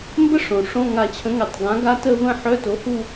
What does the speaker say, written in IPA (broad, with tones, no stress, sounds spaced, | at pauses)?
m b ə˦˥ ʂ õ˩ ʂ õ˧˥˧ ŋ a˧˩ t͡ɕʰ ə̃˨˥ ŋ ɛ˧˩ tˤ ɡ ã˨˥ ɡ a˦˥ t ə˥˧ v ə̃˥˧ ħ œ˧˥˧ t o˨˥ h u˥˧